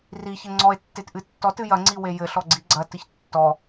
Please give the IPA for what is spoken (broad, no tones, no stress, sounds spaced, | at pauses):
r i ç ɘ ŋ͡ǀ ɔ e̯ tː e t ʔ ɨ tː ɔ t ɨ j ɐ ŋ͡ǀ i w e j ɘ ɬ ɔ ɡ͡ǀ i ɡ͡ǀ ɐ t ɨ ç tː ɔ